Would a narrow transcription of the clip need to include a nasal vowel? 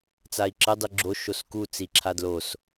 no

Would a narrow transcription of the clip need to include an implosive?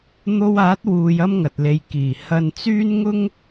no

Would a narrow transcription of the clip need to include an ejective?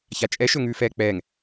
yes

